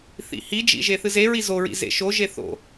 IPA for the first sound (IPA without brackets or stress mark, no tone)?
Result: θ